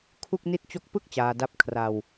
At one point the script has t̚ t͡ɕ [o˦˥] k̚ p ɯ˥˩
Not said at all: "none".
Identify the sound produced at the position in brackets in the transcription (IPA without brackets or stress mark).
o˦˥